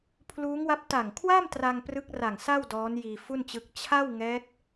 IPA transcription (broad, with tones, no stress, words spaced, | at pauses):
pʰluː˦˥ŋwa˦˥p̚ ta˨˩ŋkʰwa˥˩mtra˧ŋ prɯ˦˥k̚ra˨˩ŋsa˥˩w dɔː˦˥njiː˧fu˥˩nt͡ɕɯ˦˥k̚ t͡ɕʰa˥˩wŋɛː˦˥k̚